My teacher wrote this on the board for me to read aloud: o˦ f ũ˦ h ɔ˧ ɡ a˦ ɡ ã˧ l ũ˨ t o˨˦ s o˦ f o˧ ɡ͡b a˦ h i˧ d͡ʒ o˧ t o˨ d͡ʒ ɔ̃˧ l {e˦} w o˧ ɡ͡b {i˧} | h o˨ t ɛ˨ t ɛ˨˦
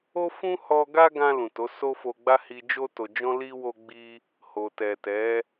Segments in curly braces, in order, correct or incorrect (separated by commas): incorrect, correct